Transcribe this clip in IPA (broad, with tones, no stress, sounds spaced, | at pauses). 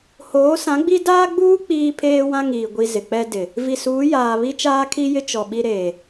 h oː˨˦ s ã˨˦ ɡ͡b i˦ d aː˦ ɡ͡b uː˦ k͡p iː˦ pʰ eː˦ w ã˦ ŋ iː˨ ɡʷ i˨ z ɪ˨ k͡p ɛ˦ d ɪ˨ | v i˨ s uː˨˦ j aː˨ β i˦ t͡ʃ aː˦ kʰ i˦ j ɪ˦ t͡ʃ ɔ˨ ɓ i˦ ɾ eː˨